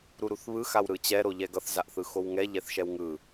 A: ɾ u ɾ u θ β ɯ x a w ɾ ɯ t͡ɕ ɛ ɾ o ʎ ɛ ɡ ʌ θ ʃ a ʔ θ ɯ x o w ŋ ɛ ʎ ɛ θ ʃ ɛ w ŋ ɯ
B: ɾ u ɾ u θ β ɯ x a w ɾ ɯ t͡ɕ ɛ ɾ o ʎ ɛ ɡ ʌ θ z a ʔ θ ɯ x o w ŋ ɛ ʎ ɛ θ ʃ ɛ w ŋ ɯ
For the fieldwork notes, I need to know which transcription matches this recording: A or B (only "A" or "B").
B